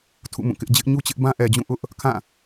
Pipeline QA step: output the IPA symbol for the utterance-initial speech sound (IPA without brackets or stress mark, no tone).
tʰ